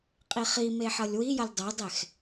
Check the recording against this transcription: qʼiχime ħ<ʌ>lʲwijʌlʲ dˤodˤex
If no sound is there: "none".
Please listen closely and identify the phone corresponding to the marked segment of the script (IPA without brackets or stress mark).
ʌ